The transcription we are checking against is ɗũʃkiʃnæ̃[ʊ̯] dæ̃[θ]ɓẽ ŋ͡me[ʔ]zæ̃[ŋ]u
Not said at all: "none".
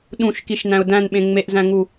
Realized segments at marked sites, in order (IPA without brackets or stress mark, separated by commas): ʊ̯, n, ʔ, ŋ